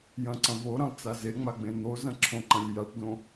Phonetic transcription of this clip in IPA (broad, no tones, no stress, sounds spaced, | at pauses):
j ɐ̃ ǀ ɐ̃ v o ɾ ɐ̃ lˠ t͡s a z e ŋ͡m a ɡ͡b ẽ n̪ o z ɐ̃ ǁʰ õ ǃ ɐ̃ lʲ j a ʈ d õ